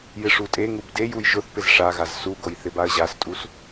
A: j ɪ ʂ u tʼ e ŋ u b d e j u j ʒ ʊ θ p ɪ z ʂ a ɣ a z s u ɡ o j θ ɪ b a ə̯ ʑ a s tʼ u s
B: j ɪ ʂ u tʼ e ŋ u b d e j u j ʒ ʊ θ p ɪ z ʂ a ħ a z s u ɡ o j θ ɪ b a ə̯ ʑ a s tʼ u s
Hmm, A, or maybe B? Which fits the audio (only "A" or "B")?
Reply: A